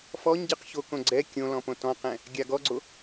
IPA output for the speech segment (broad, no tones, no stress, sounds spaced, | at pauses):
f ɔ ɲ ɟ ɯ q ç o k õ ɡ͡ǀ ɛ kʲ õ l ɔ̃ p õ t ɔ̃ q ɛ̃ | ɡʲ a ɡ ɔ ɡ͡ǀ o